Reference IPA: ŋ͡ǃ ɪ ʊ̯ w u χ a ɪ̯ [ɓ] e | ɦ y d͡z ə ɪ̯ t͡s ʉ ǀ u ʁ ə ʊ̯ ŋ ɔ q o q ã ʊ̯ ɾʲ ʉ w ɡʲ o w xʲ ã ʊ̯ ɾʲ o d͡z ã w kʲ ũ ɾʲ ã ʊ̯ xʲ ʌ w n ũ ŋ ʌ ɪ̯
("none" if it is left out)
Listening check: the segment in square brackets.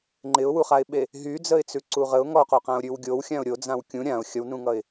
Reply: ɓ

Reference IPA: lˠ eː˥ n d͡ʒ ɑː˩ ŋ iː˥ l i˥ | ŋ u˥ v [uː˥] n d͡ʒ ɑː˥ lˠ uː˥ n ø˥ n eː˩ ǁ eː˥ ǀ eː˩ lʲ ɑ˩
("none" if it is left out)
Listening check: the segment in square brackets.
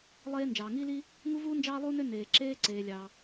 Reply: uː˥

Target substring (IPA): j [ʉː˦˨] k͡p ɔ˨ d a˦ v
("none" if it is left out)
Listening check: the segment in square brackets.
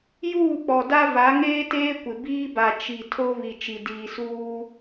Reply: uː˦˨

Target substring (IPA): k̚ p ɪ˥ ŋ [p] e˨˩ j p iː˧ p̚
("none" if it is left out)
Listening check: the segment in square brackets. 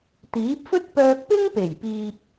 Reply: p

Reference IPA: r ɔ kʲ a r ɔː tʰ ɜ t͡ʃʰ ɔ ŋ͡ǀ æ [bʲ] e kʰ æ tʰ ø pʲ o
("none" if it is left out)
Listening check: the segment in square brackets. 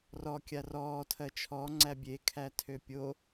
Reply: bʲ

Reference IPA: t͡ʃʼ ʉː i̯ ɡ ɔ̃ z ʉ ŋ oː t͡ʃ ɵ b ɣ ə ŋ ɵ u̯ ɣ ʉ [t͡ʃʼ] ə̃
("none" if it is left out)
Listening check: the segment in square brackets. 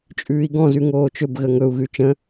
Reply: t͡ʃ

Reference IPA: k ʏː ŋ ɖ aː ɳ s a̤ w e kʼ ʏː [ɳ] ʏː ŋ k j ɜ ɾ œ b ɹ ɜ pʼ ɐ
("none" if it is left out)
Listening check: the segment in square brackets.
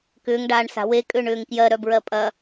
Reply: ɳ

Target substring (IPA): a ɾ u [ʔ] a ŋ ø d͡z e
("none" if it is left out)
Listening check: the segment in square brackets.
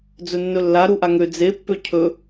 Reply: ʔ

